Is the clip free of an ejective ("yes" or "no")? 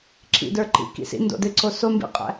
no